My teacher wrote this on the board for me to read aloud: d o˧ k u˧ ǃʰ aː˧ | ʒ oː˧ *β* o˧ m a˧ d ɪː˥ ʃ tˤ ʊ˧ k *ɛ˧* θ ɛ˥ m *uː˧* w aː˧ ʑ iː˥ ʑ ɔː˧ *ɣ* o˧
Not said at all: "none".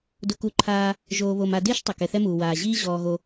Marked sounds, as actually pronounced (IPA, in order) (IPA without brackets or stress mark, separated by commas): β, ɛ˧, uː˧, ɣ